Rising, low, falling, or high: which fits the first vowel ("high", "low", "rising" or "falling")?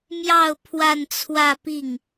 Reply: falling